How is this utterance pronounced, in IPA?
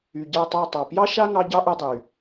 y˨ɟa˦˨tˤɑ˦˨ tˤɑ˨ pjɑ˦ʃa˦ ŋɑ˦ɟɑ˦ʔu˧dˤy˨

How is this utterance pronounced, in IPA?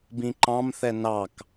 bĩǃɑ̃mθɛ nɑk

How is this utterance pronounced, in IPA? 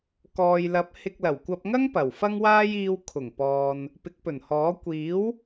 kɔː˨jlɐ˨˥p̚ hɪ˧k̚lɐ˨˩wkʷɐ˧p̚ŋɐ˥ŋ pɐ˨˩w fɐ˧ŋwaː˧jiː˨w kʰʊ˨˩ŋpɔː˨n | pɪ˨˥k̚pɵ˨˩nhɔː˨˥ kʷiː˨˥w

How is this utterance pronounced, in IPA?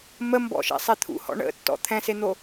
mə mbɔ̰ʃɛ̰sˤe t̪ʰṵhɔ̰ ɳə̰tːɔ̰ t̪ʰɛ̃sen̪o

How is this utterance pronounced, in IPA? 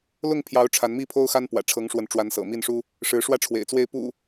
lʊ˥˨ŋpʰjɑ˨˦ʊ̯ ʈ͡ʂʰa˨˦nmi˥˨pʰo˦ʊ̯xa˦n pwä̰˨˩ʈ͡ʂʰɤ˨˦ŋʂwə˨˦nʈ͡ʂwa˨˦n sɤ̰˨˩mi˥˨nʂu˦ | ʂɻ̩˨˦ʂwä˦ʈ͡ʂʰwḛ˨˩ɪ̯t͡swe˥˨ɪ̯ pṵ˨˩

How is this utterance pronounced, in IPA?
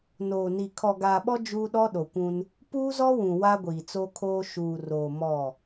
noː˨ni˨ kʰɔ˨ɡaː˨ɓɔ˦ d͡ʒuː˦ɗɔ˦ɗo˨kʷũ˦n | puː˦zɔ˦wũ˨ wa˦ɡʷiː˨t͡so˦kʰoː˦ ʃuː˨roː˨ mɔ˦˨

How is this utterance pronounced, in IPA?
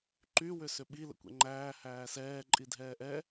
ǃy wʏsʏɓi lə̰kʷɛ̰ŋ͡ǃæː hæːsɛː ǃʼidʱɛːʔɛ

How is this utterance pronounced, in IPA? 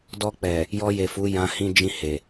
dɔ˧k͡pɛ˨ | jɔ˧je˨ fu˨˦jã˧ hĩ˧d͡ʒĩ˧ he˨

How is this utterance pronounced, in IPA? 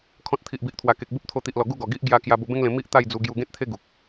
kʰɔ̃˨t̚ t̪ʰi˨ʔbi˨ʔt̪ʰwa˨˩ke˨k̚ bu˦p̚t̪ʰo˧t̪i˨ʔlɔ˨˩ ɡu˥˧ɡɔ˨˩ɡi˦ʔ ɡja˧ kja˧ bo˧bẽ˦ŋlẽ˧ mi˦ʔ t̪a˥˧jd͡zu˧ ɡju˧ɡẽ˦t̚t̪ʰe˦ ɡu˨k̚

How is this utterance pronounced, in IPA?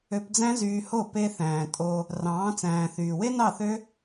ø˧pd͡zæ̃˦zyː˧ho˦˨ pe˧ θæ̃ː˨ tʼo˧ | rɑ̃ː˨˦t͡sæ̃ː˨θyː˨ we˦nɑ˦˨θø˦

